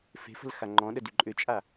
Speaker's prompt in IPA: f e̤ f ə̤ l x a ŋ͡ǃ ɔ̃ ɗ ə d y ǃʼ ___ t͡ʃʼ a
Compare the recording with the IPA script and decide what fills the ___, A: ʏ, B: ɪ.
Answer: A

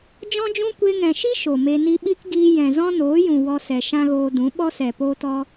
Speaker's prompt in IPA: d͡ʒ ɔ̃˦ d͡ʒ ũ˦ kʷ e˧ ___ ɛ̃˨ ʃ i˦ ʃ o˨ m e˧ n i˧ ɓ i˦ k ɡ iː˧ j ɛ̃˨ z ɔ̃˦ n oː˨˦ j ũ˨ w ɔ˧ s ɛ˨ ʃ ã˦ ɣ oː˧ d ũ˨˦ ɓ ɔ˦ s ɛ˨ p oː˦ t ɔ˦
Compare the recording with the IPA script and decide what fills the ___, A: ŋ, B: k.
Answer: A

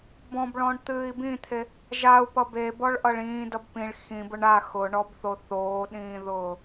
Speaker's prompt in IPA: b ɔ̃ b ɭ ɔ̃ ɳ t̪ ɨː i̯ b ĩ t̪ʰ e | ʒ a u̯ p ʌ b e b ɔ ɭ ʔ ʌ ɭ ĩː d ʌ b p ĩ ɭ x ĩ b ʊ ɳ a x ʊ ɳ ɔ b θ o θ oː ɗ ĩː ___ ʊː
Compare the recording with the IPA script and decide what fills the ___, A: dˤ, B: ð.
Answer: B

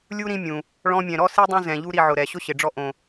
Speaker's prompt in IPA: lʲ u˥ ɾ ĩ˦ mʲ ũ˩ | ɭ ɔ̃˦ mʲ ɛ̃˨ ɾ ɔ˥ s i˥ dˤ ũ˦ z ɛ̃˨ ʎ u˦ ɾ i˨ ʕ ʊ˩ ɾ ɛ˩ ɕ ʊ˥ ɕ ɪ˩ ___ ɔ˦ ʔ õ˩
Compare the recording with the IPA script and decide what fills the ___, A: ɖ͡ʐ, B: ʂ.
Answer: A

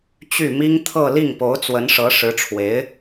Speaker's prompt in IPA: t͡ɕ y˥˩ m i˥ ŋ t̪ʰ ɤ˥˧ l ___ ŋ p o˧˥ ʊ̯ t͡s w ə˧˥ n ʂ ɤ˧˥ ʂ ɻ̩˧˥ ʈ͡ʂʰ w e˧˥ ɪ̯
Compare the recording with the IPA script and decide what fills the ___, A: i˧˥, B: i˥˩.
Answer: B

